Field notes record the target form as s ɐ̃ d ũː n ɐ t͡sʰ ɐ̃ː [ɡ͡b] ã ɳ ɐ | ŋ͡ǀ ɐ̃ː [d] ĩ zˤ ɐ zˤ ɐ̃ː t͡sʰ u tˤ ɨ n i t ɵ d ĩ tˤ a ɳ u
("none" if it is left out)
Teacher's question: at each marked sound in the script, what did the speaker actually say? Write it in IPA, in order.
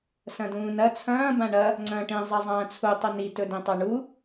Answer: b, ʈ

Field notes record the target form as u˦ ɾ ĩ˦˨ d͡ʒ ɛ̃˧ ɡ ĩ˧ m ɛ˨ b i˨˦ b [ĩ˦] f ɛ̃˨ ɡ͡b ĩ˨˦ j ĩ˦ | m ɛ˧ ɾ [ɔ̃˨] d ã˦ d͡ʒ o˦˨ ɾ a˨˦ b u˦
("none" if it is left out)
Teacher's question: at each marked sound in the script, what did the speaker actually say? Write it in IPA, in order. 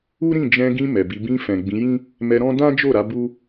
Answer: ĩ˧, ɔ̃˦

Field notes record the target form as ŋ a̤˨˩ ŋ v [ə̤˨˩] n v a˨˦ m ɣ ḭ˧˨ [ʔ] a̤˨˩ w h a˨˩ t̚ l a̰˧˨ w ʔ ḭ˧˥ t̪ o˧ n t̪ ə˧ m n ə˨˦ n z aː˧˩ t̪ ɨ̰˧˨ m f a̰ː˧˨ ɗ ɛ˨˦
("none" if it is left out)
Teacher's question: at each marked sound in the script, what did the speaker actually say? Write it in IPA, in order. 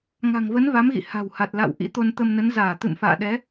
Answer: ə˨˦, h

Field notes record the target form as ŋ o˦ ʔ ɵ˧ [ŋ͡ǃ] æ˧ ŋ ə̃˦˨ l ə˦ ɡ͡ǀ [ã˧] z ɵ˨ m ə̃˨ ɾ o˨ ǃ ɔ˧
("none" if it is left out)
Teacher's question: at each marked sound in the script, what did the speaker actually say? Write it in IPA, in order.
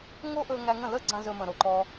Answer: ŋ, ã˧

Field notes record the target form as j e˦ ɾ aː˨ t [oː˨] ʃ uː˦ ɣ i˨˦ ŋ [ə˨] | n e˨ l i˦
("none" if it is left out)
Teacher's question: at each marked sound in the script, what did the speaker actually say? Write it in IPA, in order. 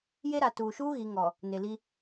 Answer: uː˨, ɔ˨

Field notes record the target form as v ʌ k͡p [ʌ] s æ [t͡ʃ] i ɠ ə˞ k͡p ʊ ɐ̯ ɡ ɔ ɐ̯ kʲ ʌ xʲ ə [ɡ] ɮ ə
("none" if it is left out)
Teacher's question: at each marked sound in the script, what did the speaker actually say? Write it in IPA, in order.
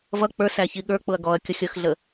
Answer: ə˞, ç, x

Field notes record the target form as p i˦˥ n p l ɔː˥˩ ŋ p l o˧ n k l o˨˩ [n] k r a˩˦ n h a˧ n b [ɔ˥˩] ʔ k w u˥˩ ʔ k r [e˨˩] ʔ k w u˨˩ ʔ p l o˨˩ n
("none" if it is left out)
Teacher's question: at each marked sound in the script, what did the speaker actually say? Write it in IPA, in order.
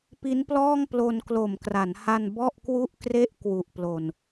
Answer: m, ɔ˥˩, e˥˩

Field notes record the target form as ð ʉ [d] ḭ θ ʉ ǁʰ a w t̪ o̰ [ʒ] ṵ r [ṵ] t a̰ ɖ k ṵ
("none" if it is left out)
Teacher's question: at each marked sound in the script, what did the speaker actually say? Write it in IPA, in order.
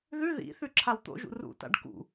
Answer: ð, ʒ, ṵ

